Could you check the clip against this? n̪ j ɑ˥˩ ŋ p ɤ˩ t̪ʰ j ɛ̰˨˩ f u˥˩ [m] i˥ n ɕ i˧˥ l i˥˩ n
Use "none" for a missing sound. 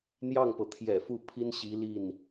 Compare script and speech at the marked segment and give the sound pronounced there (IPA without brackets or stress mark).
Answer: pʰ